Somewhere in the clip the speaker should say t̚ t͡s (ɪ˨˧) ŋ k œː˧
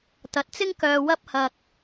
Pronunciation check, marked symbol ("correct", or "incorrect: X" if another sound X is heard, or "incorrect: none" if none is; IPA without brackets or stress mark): incorrect: ɪ˥